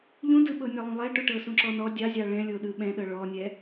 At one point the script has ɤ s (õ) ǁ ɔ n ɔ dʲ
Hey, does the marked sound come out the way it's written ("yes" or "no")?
no